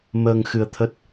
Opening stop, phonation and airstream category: aspirated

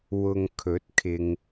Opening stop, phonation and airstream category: aspirated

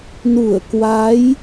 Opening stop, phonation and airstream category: plain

